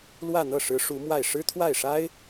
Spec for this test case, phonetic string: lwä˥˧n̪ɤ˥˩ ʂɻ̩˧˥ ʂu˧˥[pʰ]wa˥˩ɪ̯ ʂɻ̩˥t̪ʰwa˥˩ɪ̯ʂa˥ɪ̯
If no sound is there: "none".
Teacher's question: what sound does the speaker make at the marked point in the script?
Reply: m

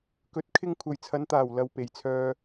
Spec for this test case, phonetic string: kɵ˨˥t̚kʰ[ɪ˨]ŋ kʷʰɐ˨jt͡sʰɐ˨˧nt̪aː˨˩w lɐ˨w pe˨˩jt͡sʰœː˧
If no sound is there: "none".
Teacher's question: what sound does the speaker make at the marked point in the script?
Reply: ɪ˧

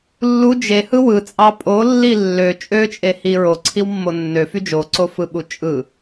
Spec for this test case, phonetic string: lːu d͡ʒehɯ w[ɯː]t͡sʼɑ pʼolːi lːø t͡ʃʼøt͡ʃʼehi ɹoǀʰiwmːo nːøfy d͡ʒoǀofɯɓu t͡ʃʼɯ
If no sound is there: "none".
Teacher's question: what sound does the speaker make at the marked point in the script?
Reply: ɯ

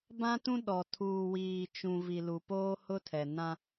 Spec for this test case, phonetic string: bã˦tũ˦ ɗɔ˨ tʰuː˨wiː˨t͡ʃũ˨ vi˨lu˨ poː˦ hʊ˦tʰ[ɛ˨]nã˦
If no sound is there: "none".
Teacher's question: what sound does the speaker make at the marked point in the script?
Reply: ɛ˨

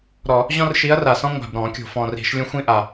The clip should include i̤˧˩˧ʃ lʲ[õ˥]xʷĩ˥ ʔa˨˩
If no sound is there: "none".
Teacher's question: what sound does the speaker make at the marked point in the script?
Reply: õ˥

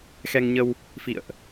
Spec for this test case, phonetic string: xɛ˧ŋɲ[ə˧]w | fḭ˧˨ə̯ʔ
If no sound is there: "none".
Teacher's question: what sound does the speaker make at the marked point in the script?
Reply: ə˧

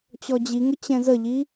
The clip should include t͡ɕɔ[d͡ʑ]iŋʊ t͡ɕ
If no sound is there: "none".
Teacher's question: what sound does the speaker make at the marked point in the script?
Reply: d͡ʑ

